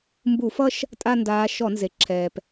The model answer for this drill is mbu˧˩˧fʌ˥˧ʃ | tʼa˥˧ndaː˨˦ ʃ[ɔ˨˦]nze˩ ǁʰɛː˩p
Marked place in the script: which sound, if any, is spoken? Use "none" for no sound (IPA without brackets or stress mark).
ɔ˧˩˧